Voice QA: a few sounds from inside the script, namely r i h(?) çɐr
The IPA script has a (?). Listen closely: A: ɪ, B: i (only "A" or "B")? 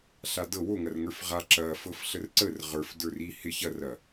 A